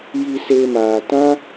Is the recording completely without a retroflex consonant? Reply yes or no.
yes